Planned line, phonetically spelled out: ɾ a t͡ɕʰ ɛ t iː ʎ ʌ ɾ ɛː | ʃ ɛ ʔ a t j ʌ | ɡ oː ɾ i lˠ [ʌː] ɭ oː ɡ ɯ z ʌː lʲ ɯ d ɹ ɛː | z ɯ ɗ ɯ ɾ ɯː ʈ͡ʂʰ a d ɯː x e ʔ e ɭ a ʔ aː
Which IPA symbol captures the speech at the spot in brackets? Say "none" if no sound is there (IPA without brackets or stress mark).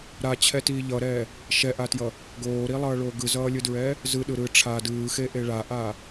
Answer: ʌː